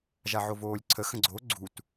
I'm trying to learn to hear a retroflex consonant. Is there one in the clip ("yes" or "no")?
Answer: no